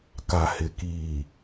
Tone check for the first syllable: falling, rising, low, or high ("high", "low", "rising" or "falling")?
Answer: low